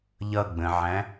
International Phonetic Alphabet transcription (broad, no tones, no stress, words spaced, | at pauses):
ʎʌɡ͡bə̃ʕæ̃